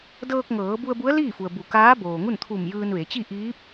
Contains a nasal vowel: no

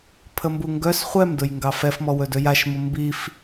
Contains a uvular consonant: yes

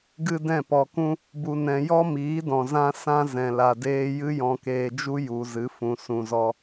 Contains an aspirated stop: no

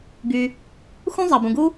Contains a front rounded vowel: yes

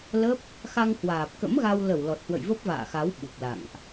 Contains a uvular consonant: no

